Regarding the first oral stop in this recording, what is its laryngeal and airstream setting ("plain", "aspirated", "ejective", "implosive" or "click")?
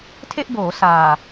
aspirated